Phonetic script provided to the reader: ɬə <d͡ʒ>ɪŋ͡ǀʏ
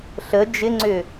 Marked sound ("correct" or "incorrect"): correct